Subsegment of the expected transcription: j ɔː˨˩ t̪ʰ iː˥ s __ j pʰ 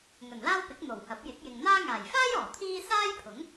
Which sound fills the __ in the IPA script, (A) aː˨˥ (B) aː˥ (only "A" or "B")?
B